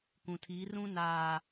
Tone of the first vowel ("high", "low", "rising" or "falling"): low